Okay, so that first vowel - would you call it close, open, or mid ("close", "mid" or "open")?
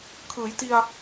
close